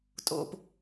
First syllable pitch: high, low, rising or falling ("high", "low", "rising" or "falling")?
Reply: low